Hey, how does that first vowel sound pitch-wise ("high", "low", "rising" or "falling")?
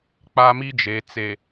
high